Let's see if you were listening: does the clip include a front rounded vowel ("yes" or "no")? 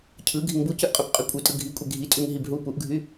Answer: yes